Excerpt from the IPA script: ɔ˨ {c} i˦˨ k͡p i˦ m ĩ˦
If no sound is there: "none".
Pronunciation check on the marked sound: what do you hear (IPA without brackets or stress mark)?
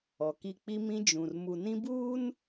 k